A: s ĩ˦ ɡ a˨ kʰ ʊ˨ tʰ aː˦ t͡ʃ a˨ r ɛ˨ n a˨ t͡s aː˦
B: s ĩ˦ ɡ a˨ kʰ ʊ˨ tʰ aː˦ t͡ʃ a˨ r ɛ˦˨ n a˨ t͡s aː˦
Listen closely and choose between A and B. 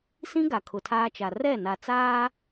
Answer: B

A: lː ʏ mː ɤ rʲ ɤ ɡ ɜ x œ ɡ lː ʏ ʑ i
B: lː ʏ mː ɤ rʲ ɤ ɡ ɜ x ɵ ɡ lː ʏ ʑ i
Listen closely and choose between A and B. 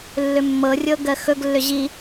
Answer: B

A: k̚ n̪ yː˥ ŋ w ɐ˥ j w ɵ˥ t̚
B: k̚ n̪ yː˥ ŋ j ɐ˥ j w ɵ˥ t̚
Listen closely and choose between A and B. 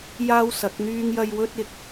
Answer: B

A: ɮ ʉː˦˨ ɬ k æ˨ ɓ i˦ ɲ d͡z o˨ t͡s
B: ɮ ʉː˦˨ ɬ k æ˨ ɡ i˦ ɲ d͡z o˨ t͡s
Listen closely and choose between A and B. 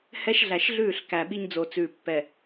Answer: A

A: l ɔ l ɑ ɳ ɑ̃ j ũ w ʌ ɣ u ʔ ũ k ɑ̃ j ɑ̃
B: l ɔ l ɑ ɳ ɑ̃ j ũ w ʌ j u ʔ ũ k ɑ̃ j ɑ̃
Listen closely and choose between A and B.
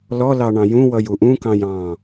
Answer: B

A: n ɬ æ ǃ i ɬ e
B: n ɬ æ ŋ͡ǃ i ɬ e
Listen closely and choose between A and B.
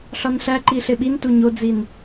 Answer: A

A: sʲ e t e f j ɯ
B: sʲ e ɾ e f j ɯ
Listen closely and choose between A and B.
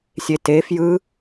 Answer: A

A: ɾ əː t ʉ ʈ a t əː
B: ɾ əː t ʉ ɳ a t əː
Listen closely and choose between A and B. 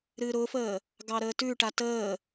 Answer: A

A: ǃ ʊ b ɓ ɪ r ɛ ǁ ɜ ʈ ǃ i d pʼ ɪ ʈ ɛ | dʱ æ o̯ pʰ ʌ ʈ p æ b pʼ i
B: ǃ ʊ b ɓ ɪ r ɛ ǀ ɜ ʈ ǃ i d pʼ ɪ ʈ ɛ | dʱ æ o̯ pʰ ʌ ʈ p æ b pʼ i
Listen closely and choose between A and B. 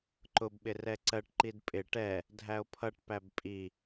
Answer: B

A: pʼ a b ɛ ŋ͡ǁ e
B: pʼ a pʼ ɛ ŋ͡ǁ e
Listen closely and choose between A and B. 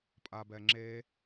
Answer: A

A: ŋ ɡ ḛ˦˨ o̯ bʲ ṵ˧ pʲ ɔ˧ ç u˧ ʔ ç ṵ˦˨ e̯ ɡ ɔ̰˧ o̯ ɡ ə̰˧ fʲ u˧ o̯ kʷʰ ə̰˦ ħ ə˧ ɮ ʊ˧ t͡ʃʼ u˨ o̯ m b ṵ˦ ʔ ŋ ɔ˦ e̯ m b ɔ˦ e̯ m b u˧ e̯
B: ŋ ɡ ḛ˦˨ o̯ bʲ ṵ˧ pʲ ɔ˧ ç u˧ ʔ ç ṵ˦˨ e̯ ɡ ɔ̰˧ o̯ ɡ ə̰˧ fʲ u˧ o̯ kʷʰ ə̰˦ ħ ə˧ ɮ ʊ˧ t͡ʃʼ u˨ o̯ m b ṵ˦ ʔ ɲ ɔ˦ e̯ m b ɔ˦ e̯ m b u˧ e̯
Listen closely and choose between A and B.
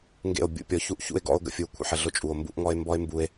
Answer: A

